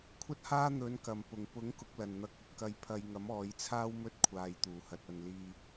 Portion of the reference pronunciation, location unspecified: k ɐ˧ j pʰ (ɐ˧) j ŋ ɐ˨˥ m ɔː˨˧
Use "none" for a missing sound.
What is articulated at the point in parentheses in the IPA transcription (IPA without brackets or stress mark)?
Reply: ɐ˧